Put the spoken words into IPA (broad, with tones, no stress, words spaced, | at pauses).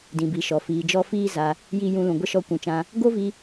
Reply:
dĩ˨bi˨ʃɔ˨ fiː˨d͡ʒɔ˧ fiː˦za˧ | ji˦ jũ˧lũ˨ ɡʷə˦ʃɔ˧ kʷũ˨t͡ʃã˧ | ɡo˦vi˧